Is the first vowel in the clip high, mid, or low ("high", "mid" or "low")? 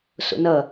mid